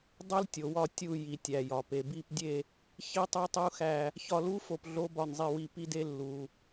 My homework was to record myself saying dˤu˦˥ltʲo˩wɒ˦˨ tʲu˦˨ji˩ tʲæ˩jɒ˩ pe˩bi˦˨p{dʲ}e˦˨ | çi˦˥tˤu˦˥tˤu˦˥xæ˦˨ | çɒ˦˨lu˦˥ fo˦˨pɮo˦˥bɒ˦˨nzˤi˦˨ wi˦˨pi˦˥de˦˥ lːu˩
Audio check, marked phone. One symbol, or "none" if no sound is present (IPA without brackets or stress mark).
dʲ